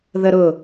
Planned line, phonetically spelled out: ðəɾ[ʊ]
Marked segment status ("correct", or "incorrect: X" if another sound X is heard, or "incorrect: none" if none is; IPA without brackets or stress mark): correct